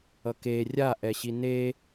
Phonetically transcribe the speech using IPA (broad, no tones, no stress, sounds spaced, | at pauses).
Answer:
ʌ k e rʲ a ʔ ɛ ɕ i n e